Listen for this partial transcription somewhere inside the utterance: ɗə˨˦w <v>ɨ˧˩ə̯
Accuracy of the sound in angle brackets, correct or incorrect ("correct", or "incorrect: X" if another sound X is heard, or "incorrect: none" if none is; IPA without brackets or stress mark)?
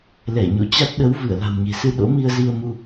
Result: correct